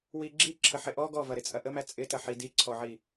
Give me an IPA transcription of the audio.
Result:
w i ɡ͡ǁ i ǁʰ ə ħ ɪ ʔ ɔ ɡ ɔ v ɐ ɾ ɪ t͡sʼ ɐ ʔ ə m æ t͡sʼ ɪ t ɐ ħ i d i ǀʰ ɔ ʕ i

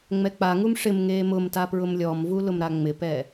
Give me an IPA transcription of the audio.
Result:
ŋ͡m ɛ k͡p a ŋ u m ʂ ɪ m ŋ eː m ʊ m t a p ɹ ʊ m lʲ ɔ m v u l ʊ m ɾ a ŋ͡m ɪ p ɛ

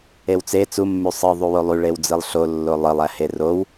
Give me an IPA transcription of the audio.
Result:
e w t͡s e t͡s u mː y sˤ ɯ ðˤ u w o lˠ y ɭ e w d͡z ɯ lˠ ɬ o lː o lˠ ɯ lˠ æ h e r o w

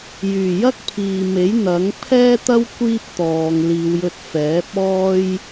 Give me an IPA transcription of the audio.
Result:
j yː˨˩ j ɐ˥ k̚ pʰ iː˨ m e˨˥ j n̪ ɐ˨˥ ŋ pʰ ɛː˥ t̪ ɐ˥ w kʷ iː˥ p̚ t̪ ɔː˨˧ ŋ l iː˨˧ w j ɵ˧ t̚ f ɛː˨˥ p̚ ɔː˥ j

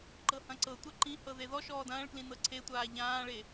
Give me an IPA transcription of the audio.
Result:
ǃ ɤ h ɐ̃ ǀ ɤ tʷ ɛ ǃ ĩ h ɤ ð e ð ɔ ʃ ɔː d ɐ̃ː ɭ k l ĩ n ɤ ǀʰ e tʷ aː ʎ ãː ɭ e

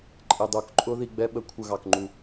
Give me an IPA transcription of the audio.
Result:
ǃʼ ɪ˨˩ dˤ u˧˩˧ k ǃʼ ʊ˦˥ ð i˧ ɡ͡b ɛ˦˥ ɓ ə˧˩˧ kʷʰ ə˧˩˧ ɣ ɑ˨˩ k ŋ͡ǃ u˨˩

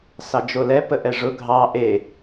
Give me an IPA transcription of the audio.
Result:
s ɑ d͡ʒ o l ɛ p ə ʔ ɛ ʐ ʊ ɡʱ ɑ ʔ e

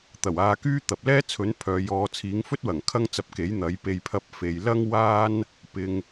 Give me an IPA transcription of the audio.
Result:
t̪ ɐ˨˩ w aː˨˧ k yː˥ t̪ ɐ˨ p̚ l ɛː˥ t͡sʰ ɵ˨˥ n pʰ œː˨ j ɔː˨˧ t͡sʰ iː˨˥ ŋ f ɵ˥ t̚ w ɐ˨˩ ŋ kʰ ɐ˥ ŋ t͡s ɐ˧ p̚ k e˨˥ j n̪ ɐ˨˥ j p e˧ j pʰ ɐ˧ p̚ f e˨ j l ɐ˥ ŋ w aː˥ n | p ɪ˨ ŋ

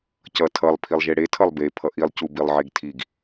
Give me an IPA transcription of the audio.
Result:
c ʌ tʰ ʌ lˠ pʰ i lˠ ʒ e ɽ e tʰ ʌ lˠ b e pʰ ʌ ʔ i lˠ c u b i lˠ ʕ e ɡ tʰ i ɡ

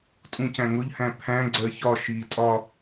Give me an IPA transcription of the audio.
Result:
tʼ ũ c æ̃ ŋ ʊ ʎ h æ̃ pʰ æ̃ ɡ͡ǀ ɜ ç ɒ ʃ i tʼ ɒ

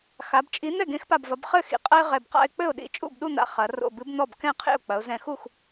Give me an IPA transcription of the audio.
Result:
x a˩˧ b t͡ʃʼ i˨˥ n̪ ɛ˥˩ ɡ ẽ˨˥ x p a˧˩ b v ɐ˩˧ b χ ɘ˥˩ x ḭ˩˧ qʼ ɐ˥ ɪ̯ ʁ ɛ˧˩ b q a̰˥˧ ɪ̯ k͡p ɘ˥˩ ʊ̯ ɗ ḭ˧˩ t͡ʃʼ ṵ˥˩ b ɗ u˥˧ n̪ a̰˧˩ χ ɐ˩˧ r o̰˧˩ b ɨ˨˥ b n̪ ɔ˥˩ b k ɛ̃˥˩ qʰ ḛ˥˩ ʊ̯ k͡p ɐ˩˧ ʊ̯ z ɛ̃˧˩ x u˥˩ x

